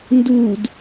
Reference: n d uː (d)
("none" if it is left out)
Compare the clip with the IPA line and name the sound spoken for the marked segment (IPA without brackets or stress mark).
d